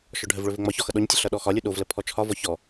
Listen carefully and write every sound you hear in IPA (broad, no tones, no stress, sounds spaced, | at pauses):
ʃ ɔ ɖʱ ə v ɭ ɵ v ɘ ŋ͡m ɒ ç ɔ x ʌ ɗ ɔ ɲ tʲ ə ɬ ʌ ɗ ɔ x ɒ lʲ u ɗ o v l ə pʰ ɔ t͡ʃʰ ɒ v ɔ ç ɔ